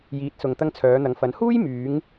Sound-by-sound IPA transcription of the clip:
j iː˨˥ t̚ s ʊ˨ ŋ t̪ ɐ˧ ŋ t͡sʰ œː˨˧ n̪ ɐ˨˧ ŋ f ɐ˨˥ n h uː˥ j m yː˨˧ ŋ

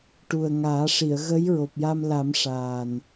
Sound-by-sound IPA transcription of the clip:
ʈ u˨˩ ə̯ ŋ aː˨˩˦ ʂ i˨˩˨ ə̯ ɣ ə˧˥ j ɹ o˨˩ p̚ j a˧ m l a˨˩˦ m ʂ aː˨˩ n

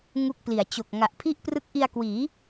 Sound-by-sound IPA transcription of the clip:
ŋ u˦˥ k̚ p l i˩˦ a̯ t͡ɕ o˨˩ k̚ ŋ a˨˩ ʔ pʰ i˥˩ ʔ p r ɯ˦˥ k̚ ʔ i˧ a̯ k w iː˩˦

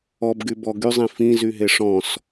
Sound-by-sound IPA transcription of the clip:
ɔ b ɡ y b ɔ ɡ y zˤ ĩ f ĩ z y ɦ e ʂ ɔ̃ s

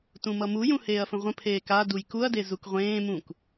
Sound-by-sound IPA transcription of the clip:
t ũ m ʌ m u j ũ h eː ɐ̯ f ə̃ ʁʷ ə̃ pʰ eː k a d u j k u ɐ̯ d e z u k ʁʷ ẽː m ũ k

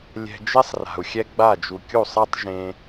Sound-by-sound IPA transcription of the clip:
lʲ ɛ̤˧ d͡ʒ e˦ sˤ r a̤˨ u̯ xʲ ɛ˦ ɡ͡b a˦˨ d͡ʒ u˨ kʲ u˦˨ sˤ ɛ˦ tˤ ʒ ẽ˦

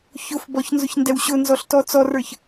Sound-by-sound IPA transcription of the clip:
ç ʊ f b ɔ ç n z ʊ ç n d ɛ w ɕ ʊ n z ɔ ɬ t ɔ t͡s ɔ r ə˞ ç

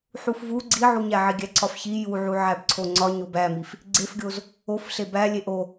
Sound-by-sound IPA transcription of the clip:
ħ u f v u ɡ͡ǀ i ʕ u ɲ æ ʕ i ɡʲ æ ǀ ɒ f ç i j u ʕ u ʕ æ b ǀʰ o ŋ͡ǀ ɒ ɲ o b æ m i f | ɡ͡ǀ e f ɡʲ o z | o f ɬ e b æ lʲ e ʔ o

